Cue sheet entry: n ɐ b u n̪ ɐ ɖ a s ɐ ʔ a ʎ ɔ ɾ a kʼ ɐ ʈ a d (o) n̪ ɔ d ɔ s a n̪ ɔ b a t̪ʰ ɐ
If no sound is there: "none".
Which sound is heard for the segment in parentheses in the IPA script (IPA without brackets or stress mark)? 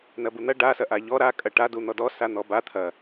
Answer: u